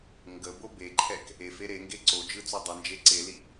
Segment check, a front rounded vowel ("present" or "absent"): absent